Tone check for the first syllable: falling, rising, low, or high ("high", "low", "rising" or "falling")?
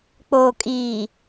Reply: low